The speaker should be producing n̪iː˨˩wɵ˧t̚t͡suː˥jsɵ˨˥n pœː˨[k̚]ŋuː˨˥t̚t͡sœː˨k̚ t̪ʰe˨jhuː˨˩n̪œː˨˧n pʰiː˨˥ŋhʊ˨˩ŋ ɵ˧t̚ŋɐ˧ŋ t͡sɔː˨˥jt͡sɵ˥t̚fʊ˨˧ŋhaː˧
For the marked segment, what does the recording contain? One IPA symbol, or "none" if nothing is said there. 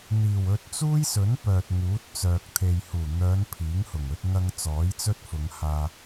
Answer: t̚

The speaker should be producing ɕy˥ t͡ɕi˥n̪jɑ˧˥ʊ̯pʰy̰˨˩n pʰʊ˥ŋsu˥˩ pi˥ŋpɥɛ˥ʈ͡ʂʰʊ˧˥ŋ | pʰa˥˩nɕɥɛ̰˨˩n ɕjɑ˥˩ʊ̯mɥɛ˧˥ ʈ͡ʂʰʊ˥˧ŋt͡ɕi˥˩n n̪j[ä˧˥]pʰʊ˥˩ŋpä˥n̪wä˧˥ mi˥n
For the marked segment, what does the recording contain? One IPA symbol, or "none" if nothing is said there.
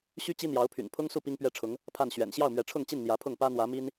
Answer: ä˧˥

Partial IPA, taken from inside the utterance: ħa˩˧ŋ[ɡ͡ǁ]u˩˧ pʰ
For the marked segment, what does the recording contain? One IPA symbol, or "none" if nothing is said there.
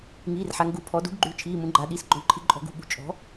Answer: ɡ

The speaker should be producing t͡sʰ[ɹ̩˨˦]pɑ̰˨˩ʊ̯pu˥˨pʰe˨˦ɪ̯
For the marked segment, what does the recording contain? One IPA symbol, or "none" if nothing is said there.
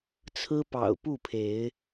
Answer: ɹ̩˦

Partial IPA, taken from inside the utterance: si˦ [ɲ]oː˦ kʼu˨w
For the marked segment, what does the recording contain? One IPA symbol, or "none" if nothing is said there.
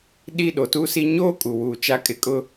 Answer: ɲ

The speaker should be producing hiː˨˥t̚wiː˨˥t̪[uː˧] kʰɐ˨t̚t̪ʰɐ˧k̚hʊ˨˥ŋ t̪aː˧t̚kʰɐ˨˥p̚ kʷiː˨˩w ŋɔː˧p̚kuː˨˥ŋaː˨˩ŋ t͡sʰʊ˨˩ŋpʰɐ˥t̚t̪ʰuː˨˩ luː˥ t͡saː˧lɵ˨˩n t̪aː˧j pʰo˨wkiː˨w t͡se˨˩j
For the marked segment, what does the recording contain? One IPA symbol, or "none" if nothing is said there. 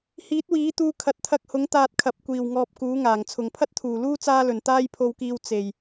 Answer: uː˧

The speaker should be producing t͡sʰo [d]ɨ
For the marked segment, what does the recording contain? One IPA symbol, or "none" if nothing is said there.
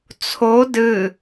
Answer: d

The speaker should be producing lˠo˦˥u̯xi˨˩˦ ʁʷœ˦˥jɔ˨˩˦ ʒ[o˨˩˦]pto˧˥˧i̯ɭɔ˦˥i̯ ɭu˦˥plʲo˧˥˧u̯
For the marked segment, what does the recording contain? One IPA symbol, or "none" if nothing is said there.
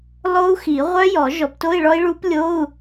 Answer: ɔ˨˩˦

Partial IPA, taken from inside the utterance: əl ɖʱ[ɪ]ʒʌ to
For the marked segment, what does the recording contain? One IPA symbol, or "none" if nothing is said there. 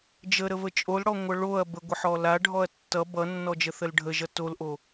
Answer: ə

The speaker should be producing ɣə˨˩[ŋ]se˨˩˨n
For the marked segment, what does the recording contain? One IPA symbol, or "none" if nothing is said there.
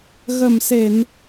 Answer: m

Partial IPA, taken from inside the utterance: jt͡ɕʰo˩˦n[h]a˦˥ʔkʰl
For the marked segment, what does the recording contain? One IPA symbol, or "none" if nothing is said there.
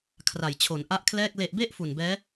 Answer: ʔ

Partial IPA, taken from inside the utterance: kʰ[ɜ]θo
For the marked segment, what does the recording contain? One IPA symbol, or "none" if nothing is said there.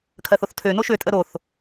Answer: ɜ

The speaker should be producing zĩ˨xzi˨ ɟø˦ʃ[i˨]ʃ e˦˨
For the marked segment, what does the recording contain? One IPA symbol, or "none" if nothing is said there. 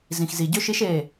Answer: i˦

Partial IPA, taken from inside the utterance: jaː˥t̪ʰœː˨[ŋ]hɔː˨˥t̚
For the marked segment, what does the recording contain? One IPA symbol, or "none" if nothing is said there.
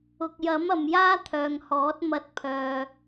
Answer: ŋ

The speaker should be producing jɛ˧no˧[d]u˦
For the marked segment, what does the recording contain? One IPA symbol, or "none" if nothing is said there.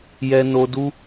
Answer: d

